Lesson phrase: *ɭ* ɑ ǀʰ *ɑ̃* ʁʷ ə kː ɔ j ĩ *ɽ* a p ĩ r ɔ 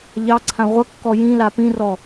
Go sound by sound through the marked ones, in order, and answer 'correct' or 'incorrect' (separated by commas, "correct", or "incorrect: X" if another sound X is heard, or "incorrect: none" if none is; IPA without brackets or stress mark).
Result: incorrect: ʎ, incorrect: ã, incorrect: l